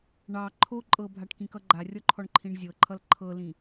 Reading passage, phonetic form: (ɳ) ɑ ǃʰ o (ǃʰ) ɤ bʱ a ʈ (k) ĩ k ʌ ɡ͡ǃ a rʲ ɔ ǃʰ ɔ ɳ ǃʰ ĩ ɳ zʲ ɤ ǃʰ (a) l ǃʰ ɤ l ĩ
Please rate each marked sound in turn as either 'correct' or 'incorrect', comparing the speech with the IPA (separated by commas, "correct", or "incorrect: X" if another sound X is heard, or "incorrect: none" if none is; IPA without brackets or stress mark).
correct, incorrect: ǃʼ, correct, incorrect: ʌ